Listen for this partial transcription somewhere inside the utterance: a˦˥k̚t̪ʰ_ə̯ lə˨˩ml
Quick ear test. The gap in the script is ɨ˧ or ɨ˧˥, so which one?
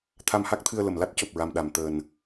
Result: ɨ˧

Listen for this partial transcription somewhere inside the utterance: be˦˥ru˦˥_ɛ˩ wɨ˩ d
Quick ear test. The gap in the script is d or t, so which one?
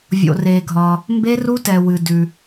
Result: t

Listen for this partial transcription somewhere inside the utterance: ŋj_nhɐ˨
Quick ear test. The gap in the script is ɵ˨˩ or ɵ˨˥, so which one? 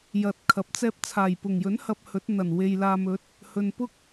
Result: ɵ˨˥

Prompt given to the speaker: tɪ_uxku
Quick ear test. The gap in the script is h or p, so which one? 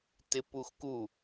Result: p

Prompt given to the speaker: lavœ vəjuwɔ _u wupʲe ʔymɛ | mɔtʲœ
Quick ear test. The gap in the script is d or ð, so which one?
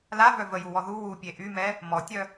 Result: ð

